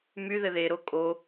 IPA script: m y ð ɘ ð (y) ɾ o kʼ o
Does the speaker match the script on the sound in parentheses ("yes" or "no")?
no